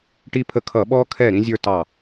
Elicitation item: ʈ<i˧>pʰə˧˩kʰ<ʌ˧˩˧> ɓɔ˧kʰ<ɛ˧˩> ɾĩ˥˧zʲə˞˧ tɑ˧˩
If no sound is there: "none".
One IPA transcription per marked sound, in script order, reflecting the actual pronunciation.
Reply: i˧, ʌ˧˩˧, ɛ˧˩

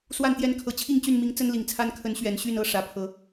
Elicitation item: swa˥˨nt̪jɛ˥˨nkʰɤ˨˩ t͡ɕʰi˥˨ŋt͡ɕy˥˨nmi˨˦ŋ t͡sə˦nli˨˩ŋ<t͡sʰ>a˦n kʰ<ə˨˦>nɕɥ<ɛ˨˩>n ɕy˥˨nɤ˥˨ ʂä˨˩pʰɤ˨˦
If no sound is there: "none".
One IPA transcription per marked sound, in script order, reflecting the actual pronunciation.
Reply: t͡sʰ, ə˨˦, ɛ˨˩

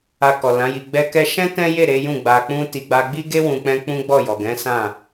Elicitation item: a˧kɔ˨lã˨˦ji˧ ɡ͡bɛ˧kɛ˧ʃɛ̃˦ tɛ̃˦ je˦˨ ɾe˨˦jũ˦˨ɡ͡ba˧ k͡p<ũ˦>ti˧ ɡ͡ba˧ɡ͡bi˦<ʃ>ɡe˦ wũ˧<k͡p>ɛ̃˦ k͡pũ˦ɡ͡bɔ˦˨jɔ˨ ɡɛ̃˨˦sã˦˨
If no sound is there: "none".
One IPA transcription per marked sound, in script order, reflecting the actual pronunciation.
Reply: ũ˦, none, k͡p

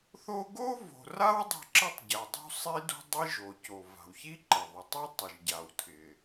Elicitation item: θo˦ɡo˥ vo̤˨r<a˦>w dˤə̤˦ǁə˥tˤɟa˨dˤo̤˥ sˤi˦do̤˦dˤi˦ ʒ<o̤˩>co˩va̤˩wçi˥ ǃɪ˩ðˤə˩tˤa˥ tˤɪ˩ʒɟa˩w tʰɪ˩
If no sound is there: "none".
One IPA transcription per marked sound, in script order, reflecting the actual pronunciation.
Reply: a˥, o˩

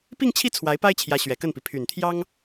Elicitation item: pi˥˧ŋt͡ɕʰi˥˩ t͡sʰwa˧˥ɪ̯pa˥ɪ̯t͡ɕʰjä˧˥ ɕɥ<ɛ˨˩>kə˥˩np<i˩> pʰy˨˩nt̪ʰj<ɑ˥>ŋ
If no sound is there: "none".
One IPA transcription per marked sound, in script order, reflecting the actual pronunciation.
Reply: ɛ˨˩, i˩, ɑ˥

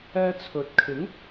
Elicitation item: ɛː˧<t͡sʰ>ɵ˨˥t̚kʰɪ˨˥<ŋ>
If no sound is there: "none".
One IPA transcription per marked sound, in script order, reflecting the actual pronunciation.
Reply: t͡sʰ, ŋ

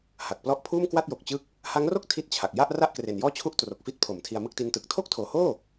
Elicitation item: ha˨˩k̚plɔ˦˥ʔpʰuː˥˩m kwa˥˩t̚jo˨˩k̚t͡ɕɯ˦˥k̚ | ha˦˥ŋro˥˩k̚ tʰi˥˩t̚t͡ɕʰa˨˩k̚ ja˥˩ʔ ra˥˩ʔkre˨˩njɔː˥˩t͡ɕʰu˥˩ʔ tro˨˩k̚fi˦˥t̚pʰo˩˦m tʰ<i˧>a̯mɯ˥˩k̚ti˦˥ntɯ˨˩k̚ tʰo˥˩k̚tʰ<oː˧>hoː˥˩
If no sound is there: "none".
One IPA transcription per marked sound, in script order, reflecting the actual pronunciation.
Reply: i˧, oː˩˦

